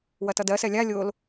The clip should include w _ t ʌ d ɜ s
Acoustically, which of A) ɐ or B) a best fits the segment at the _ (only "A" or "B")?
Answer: A